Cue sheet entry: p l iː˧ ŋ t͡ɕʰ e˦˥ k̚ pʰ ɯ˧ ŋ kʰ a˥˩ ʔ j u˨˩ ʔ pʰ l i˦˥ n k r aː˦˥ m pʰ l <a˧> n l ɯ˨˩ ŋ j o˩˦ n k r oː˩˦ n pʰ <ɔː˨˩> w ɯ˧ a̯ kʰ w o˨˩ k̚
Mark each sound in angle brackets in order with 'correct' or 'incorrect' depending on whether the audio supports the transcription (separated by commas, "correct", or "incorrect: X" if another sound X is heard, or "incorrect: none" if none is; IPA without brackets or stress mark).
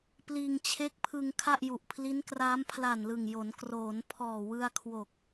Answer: incorrect: a˨˩, correct